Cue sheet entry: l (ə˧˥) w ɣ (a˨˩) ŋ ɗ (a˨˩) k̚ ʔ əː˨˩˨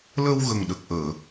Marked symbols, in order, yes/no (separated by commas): no, no, no